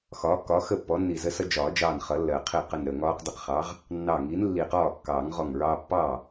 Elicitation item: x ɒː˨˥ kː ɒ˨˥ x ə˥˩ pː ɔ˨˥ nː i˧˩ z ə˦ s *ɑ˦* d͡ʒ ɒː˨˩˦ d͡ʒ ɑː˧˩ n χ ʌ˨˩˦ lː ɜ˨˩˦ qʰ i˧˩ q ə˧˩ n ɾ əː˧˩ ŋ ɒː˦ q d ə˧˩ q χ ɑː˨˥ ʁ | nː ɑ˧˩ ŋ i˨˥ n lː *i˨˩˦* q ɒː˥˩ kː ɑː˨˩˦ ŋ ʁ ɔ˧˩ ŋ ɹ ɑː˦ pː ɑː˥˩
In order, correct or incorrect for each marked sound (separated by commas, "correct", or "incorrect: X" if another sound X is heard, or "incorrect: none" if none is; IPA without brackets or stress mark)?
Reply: incorrect: ʌ˦, incorrect: i˧˩